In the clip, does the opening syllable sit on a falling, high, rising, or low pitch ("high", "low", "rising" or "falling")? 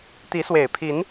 rising